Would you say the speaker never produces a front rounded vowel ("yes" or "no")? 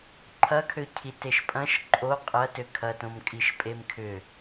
no